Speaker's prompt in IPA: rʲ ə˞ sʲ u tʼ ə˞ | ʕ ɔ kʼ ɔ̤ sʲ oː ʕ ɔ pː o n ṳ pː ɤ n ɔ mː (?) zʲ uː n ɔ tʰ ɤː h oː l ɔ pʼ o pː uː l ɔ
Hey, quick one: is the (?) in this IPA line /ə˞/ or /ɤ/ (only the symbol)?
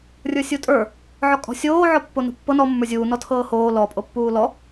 ə˞